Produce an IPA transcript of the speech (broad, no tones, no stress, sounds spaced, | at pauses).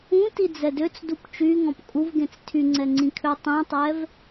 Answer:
ũ t i d͡z ɛ d ø t͡s d u p t͡ʃ y ŋ ɔ̃ p kʼ u v ɡ ẽ t͡s tʰ y ŋ͡ǀ ɛ ŋ͡ǀ ĩ kʰ ø tˤ ĩ tˤ ɛ v